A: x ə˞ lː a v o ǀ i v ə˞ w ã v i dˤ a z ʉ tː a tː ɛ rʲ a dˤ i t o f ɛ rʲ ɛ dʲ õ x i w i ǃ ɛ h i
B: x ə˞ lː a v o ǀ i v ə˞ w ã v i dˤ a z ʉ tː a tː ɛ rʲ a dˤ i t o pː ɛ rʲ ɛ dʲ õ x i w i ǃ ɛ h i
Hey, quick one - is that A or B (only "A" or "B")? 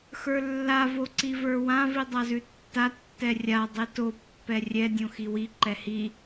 B